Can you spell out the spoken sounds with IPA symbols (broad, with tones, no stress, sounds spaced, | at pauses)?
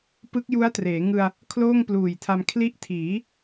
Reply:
p ɯ˦˥ k̚ j u˦˥ a̯ t r eː˩˦ ŋ ɯ˧ a̯ | kʰ l oː˥˩ ŋ p l uː˨˩ j tʰ a˧ m kʰ l i˦˥ ʔ tʰ iː˩˦